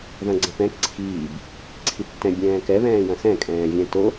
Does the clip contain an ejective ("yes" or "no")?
yes